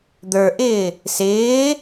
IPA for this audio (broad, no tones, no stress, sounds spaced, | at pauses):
d̪ ə˞ ʔ ɪː | s ɪː